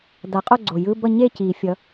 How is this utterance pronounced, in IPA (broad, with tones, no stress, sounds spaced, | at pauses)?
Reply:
d a˨˩˦ qʼ o˥˨ ɡ͡ǀ o˨˩ j ɯ˧˥˧ b ʌ˥˨ ɲ e˥˨ c i˨˩˦ fʲ ʌ˨˦